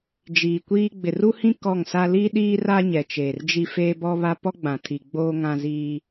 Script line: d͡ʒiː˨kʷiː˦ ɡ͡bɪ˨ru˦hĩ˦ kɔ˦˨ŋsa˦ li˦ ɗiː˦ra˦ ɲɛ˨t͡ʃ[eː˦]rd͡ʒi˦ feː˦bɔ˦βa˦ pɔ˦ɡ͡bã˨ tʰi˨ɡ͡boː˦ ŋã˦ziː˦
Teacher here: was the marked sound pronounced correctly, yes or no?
no